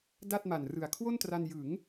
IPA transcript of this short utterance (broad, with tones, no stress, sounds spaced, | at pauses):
d a˥˩ t̚ m a˨˩ n r ɯ˨˩ a̯ kʰ w o˥˩ n t r a˧ n j ɯ˩˦ ŋ